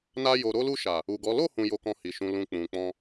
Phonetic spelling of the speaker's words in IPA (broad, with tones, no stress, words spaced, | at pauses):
na˧jo˨ ɾo˧lu˧ʃa˨ | u˨ɡɔ˨˦ lo˦˨ hũ˧jo˧kɔ̃˧hi˨ ʃũ˨lũ˨ k͡pũ˨k͡pɔ̃˧